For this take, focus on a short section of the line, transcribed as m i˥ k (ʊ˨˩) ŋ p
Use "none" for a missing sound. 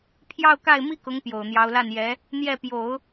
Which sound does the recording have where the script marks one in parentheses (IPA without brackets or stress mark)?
ʊ˧˥